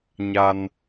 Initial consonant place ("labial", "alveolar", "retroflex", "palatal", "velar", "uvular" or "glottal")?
palatal